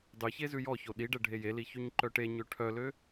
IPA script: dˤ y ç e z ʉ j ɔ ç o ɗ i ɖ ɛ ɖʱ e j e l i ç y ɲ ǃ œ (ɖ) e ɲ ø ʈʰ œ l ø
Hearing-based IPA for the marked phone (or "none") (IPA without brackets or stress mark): ʈ